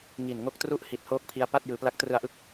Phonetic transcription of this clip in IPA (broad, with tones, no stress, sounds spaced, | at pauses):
ŋ i˨˩ n ŋ o˦˥ k̚ t r u˥˩ ʔ h i˨˩ t̚ h oː˦˥ k̚ pʰ i˧ a̯ p a˥˩ t̚ j ɯː˨˩ p l a˦˥ k̚ t r ɯ˧ a̯ ʔ ɯ˦˥ k̚